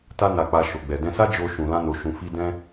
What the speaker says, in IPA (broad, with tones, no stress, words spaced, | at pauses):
ta˧na˨k͡pa˨ ʃo˨ɡ͡bɛ˨dɛ̃˧sa˦ d͡ʒo˧ʃũ˨lã˧no˨ ʃũ˨fi˧ dɛ̃˦